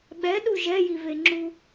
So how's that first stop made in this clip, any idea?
implosive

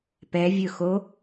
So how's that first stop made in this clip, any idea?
plain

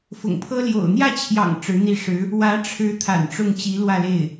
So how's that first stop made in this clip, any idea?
aspirated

